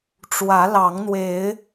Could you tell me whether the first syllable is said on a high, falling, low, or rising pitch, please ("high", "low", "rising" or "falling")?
rising